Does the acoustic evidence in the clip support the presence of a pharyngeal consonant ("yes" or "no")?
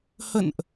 no